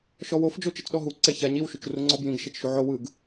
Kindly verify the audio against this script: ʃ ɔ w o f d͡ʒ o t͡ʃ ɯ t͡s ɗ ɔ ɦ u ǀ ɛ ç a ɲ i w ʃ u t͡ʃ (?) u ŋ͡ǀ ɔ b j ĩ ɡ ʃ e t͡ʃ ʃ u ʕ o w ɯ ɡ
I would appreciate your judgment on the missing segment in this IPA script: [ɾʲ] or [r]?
r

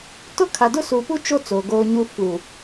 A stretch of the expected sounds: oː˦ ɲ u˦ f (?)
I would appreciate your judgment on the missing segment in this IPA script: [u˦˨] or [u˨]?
u˨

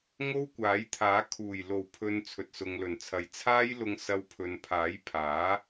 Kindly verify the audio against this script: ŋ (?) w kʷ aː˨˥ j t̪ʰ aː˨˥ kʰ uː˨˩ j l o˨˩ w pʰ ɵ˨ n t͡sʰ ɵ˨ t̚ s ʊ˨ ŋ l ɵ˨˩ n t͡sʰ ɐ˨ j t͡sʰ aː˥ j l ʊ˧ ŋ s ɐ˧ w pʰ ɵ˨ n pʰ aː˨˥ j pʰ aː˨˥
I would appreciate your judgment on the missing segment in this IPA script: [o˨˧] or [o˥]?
o˥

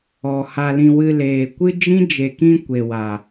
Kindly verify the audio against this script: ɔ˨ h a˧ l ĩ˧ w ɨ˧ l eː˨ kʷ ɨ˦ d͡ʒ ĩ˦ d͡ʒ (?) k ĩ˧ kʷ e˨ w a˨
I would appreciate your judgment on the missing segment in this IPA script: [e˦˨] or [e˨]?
e˨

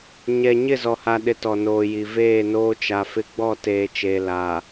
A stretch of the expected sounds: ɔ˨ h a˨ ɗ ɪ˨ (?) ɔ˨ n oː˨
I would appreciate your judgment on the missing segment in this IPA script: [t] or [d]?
t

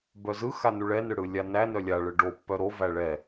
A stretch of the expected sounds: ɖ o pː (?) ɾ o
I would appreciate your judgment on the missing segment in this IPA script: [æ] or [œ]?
œ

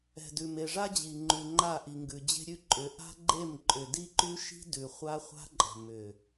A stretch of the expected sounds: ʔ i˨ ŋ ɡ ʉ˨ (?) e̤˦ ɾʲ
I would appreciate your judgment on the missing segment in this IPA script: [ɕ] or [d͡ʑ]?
d͡ʑ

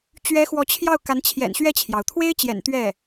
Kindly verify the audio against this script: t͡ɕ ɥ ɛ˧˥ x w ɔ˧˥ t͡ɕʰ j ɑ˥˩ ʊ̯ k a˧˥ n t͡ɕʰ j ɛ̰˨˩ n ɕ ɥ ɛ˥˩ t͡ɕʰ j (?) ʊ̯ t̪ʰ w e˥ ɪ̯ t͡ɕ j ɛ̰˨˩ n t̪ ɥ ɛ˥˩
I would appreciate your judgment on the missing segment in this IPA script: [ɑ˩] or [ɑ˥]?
ɑ˩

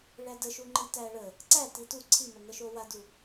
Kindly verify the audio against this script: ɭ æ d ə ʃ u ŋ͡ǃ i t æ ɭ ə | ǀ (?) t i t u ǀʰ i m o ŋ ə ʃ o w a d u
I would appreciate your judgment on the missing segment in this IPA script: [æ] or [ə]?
æ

